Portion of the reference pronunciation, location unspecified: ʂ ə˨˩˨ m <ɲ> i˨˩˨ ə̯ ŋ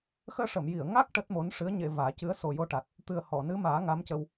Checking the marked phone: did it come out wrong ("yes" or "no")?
yes